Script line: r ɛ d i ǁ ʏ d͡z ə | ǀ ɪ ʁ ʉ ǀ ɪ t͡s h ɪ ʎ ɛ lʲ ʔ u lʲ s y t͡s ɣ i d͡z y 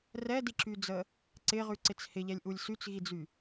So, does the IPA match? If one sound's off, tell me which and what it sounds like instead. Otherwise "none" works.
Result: ʏ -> y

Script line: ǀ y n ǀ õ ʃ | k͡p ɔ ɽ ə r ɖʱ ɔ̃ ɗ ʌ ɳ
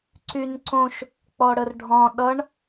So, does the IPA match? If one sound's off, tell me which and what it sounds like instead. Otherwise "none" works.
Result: none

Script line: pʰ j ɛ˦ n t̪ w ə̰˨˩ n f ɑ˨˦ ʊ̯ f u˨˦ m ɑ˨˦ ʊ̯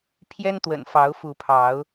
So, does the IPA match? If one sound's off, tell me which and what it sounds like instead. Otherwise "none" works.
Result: m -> pʰ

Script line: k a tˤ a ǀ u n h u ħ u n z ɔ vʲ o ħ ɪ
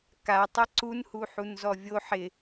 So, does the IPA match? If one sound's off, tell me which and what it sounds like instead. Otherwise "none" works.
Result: none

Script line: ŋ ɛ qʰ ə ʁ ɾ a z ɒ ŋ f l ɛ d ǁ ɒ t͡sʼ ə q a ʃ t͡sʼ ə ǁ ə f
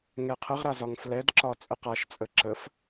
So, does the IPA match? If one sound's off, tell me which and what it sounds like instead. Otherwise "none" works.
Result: none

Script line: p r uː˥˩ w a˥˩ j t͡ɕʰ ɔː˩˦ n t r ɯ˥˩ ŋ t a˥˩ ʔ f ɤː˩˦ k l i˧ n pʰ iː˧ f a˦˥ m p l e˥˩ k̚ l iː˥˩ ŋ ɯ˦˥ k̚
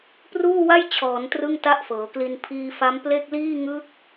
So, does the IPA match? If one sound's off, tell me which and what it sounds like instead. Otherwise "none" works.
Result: none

